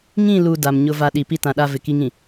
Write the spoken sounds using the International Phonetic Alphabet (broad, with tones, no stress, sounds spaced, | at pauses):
ŋ ĩ˦˨ l u˨ d a˨ m ɲ ʊ˦ v a˦ ɗ i˨ p i˦ t ã˨ ɗ a˦ v ɪ˨ k i˦ ŋ ĩ˨